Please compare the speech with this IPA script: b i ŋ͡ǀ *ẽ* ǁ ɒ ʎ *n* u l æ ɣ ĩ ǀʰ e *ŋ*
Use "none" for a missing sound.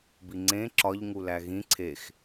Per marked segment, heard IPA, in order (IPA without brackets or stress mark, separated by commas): ẽ, ŋ, x